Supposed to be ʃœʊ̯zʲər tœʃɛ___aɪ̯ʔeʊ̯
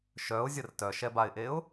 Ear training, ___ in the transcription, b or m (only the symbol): b